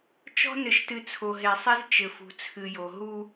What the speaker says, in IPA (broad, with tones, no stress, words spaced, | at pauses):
t͡ʃɔ̤˦nɘ˨ʃtɨ˨ t͡sʰo˨ɦe˨sˤi˦z t͡ʃɘ˨fṳ˨t͡sʰɨ˨jo˨ ɦu˦